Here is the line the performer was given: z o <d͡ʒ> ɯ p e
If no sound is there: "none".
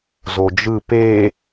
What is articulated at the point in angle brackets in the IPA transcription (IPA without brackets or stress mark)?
d͡ʒ